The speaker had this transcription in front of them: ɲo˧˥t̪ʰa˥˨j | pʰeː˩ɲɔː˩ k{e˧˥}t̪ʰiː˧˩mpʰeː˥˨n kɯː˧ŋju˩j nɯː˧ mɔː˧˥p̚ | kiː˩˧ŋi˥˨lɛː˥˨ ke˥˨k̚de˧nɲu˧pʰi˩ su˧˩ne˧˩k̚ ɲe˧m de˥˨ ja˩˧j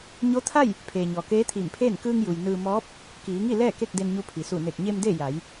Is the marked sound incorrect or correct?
incorrect